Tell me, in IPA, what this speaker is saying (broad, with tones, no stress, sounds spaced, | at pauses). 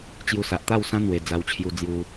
t͡ɕ j u˧ s a˨ ʔ t̪ a˥˧ w s ã˦ n̪ w e˨˩ d͡z a˧ w t͡ɕʰ j u˧ d͡z j u˧